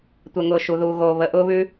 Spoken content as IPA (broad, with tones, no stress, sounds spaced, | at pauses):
tʷ ɛ˥ ŋ ʊː˥ ʃ u˧ ð uː˧ ɣ oː˧ β ə˧ ʔ ʊː˥ β ʉ˥